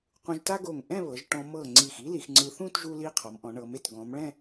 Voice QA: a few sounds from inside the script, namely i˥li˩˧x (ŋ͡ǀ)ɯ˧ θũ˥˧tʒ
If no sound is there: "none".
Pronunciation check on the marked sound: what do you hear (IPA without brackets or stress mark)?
ŋ͡ǀ